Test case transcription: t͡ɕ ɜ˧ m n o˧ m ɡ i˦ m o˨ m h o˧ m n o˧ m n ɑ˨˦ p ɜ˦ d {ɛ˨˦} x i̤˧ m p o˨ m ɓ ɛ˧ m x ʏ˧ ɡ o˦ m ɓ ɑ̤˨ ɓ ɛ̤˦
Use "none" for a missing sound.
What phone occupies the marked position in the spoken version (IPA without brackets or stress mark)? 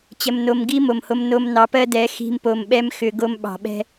ɛ˨˦